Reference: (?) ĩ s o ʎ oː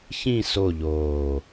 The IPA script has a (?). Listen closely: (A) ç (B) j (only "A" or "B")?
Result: A